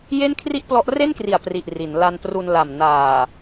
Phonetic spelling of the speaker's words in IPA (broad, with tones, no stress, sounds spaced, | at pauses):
j e˥˩ n kʰ r i˥˩ ʔ p l ɔ˦˥ ʔ r e˥˩ n k r i˨˩ a̯ p r i˨˩ ʔ r i˩˦ n l a˧ n p r u˧ n l a˨˩ m n aː˨˩